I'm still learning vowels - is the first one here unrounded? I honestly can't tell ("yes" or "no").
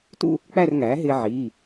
no